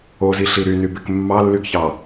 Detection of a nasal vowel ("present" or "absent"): absent